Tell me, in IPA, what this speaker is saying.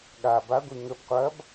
ɠ a b a ɡʷ i ŋ ə b qʷ ɐ b

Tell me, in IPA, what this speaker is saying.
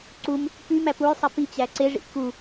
ǀ u m | p y m æ p u j sˤ i p i t͡ɕ æ ǀ e ʐ ḭ ʔ k u

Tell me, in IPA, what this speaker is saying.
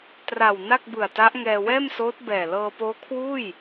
t r a˨˩ w n a˥˩ k̚ b ɯ˨˩ a̯ t a˦˥ ʔ ŋ ɛː˧ w ɛː˥˩ m s oː˦˥ t̚ b ɛː˨˩ l ɤː˧ p oː˦˥ kʰ w uː˥˩ j

